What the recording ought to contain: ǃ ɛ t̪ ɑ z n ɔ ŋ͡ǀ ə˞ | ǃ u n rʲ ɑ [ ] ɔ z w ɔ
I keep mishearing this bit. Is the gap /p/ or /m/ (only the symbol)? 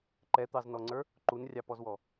p